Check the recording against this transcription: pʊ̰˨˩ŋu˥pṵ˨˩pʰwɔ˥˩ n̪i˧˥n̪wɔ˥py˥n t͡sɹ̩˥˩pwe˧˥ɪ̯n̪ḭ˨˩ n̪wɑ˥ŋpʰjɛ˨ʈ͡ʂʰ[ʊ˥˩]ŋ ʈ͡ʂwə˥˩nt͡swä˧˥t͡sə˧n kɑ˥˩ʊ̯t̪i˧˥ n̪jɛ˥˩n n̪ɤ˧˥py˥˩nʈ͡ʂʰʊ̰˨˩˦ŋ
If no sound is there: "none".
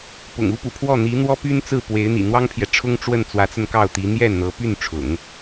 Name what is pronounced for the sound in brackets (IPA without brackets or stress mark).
ʊ˥